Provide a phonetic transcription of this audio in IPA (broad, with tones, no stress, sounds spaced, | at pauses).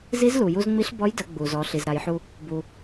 z i˧˥ z l u˩ j u˧ z ŋ͡m i˧˥ ɬ b ɔ˧˥ j d ə˩˧ ɡ͡b u˩ z ɔ˩˧ ɬ i˩ z ɾ a˩˧ j ħ u˧ | b u˩